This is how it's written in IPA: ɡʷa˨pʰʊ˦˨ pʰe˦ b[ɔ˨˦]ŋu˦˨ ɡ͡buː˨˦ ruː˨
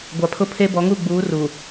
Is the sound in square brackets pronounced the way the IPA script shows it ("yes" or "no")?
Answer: yes